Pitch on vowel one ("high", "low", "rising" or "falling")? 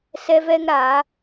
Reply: high